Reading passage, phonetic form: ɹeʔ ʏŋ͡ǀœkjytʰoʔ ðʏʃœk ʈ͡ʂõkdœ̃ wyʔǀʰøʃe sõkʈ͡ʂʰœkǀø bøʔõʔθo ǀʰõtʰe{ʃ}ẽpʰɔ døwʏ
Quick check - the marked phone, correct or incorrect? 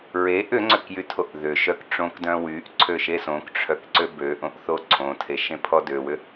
correct